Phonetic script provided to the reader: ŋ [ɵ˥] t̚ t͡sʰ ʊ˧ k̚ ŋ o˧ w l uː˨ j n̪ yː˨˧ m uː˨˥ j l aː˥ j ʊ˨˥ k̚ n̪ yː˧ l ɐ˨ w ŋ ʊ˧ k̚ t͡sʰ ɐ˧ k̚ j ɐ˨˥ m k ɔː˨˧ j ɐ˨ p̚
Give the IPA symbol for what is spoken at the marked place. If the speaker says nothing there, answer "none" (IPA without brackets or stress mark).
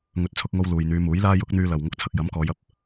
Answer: ɵ˨˥